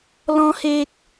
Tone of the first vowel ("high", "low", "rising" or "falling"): high